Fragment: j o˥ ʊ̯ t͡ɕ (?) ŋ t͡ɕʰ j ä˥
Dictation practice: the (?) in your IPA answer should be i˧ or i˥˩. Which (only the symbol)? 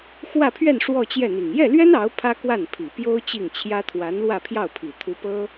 i˥˩